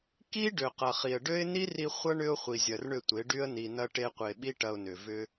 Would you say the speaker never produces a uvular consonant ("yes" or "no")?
no